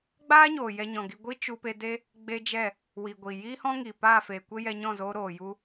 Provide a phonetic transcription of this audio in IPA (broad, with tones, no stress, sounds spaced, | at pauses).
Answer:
ɡ͡b aː˦ ɲ oː˨ j ɛ˧ ɲ ɔ̃˨ ɡ i˧ ɡʷ i˦ t͡ʃ u˧ p e˧ d e˦ | ɡ͡b e˦ d͡ʒ ɛ˦˨ | w i˨ ɡʷ i˨ j iː˦ h ɔ̃˦ ŋ iː˨ p aː˦˨ f eː˨ kʷ e˦ j ɛ˧ ɲ ɔ̃˦˨ z oː˧ ɾ oː˨ j u˦